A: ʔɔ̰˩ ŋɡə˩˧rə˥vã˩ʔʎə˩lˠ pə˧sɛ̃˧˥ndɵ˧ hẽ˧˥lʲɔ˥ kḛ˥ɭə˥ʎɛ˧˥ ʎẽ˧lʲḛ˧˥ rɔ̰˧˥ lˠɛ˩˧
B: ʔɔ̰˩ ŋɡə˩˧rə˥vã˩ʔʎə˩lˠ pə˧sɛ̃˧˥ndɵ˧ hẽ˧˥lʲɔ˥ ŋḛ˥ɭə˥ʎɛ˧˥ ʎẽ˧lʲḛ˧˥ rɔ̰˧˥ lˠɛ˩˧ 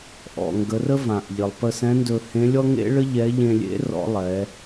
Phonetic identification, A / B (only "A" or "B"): B